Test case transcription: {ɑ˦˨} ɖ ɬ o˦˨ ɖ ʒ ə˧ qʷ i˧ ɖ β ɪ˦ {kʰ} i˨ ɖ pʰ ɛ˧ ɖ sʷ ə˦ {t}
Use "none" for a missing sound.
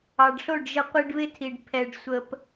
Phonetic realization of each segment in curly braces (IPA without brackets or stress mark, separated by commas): ɑ˨, tʰ, p